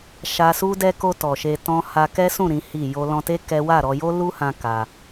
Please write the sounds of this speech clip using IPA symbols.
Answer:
ʃ a˧ s u˦ d ɛ˧ k o˧ t ɔ˨ ʃ e˧ t ɔ̃˧ h a˧ k ɛ˦ s ũ˦˨ ɾ ĩ˨˦ h i˦˨ j o˧ l ɔ̃˧ t e˦ k ɛ˦ w a˦˨ ɾ ɔ˧ j o˦ l u˦ h ã˧ k a˧

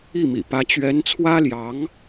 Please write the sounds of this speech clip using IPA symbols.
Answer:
i˥˩ m ḭ˨˩ p ä˧˥ t͡ɕ ɥ ɛ˧˥ n t͡sʰ w ä˥ l j ɑ˧˥ ŋ

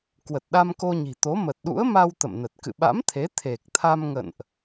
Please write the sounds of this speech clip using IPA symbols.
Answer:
k w ə˨˩ t̚ ɗ a˧ m k o˧ ɲ i̤˨˩ t̪ o˨˦ m ə˨˩ t̚ ɗ ṵ˧˥ ə̯ m a˧ w t̪ ə̰˧˨ m n ə˨˩ t̚ k ɨ̰˧˨ ɓ a̰˧˥ m t̪ʰ e˨˦ t̪ʰ e˨˩ k̚ t̪ʰ a˧ m ŋ ə̰˧˨ n ʔ

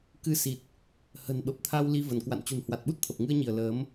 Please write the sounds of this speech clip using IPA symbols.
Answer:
k ɨ˧ s i˨˩ t̚ | h ə̤˨˩ n ɓ ə˨˩ p̚ t̪ʰ a˧ w l i˧ v ə˧˩ n k w a̰˧˨ n t͡ɕ ṳ˨˩ n h w a˨˩ t̚ ɓ u˦˥ t̚ t̪ʰ ə˨˩ p̚ ŋ ɨ˧ ə̯ ɲ i˧˩ ə̯ l əː˨˦ m

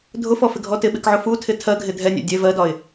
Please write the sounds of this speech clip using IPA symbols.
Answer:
dʱ ʊ f ɔ f ɪ ɡʱ ɔ t ɪ ɓ ɪ k ʕ ʊ f u tʰ ɪ tʰ ɜ ɡʱ ɪ dʱ ɛ nʲ æ̰ dʲ ɛ v ɜ d ɒ ɪ̯

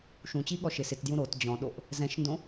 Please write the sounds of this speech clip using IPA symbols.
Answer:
ʃ ũ t͡ɕ i ɠ ɔ ʃ ɪ s ɪ t d j ũ ɾ o t d͡ʑ ɔ̃ ɗ o ʔ | z ɛ̃ ʃ n d õ

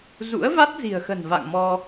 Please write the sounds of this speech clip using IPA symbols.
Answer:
z ṵ˧˥ ə̯ v a˦˥ t̚ z i̤˨˩ ə̯ x ə̤˨˩ n v a̰˧˨ ŋ m ɔ˧

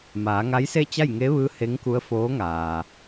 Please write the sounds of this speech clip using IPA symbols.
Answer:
m aː˩˧ ŋ a˧˥ j s e˥˨ t͡ɕ a˥˨ j ŋ e˧˥ ʋ ɯː˧˥ h e˧˥ ŋ k u˧˥ ə̯ f oː˧˥ ŋ aː˩

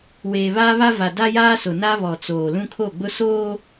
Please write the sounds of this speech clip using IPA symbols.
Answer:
w eː˨ β aː˦ β a˦ v a˨ d a˦ j aː˦ s ʊ˨ n a˦ β ɔ˨ t͡s oː˨ l ũ˦ kʰ o˦˨ ɡ͡b ʊ˦ s oː˦

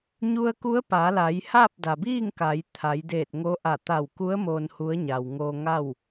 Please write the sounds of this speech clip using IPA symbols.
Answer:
ɲ u˧ ə̯ k u˧˥ ə̯ p a˩˧ l a˩˧ j h a˥˨ p̚ d a˩ b iː˥˨ ŋ k a˩˧ j t̪ʰ a˩˧ j d eː˧˩ t̚ ŋ o˧˥ ʔ a˧˩ t̪ a˧˩ w k u˧˥ ə̯ m oː˧ n h u˧˥ ə̯ ɲ a˩ w ŋ oː˧ ŋ a˥˨ w

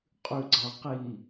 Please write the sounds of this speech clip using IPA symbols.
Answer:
qʼ ʉ ɡ͡ǀ a q i

